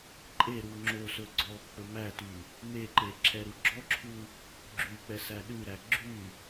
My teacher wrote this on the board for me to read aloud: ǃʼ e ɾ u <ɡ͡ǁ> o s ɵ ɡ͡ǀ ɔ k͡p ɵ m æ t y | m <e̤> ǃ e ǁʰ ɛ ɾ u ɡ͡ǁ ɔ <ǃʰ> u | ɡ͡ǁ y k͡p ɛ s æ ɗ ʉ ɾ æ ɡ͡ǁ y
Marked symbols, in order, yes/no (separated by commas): no, no, no